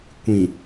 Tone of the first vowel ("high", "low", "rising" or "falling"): low